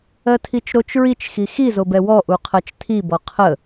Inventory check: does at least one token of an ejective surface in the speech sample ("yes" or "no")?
no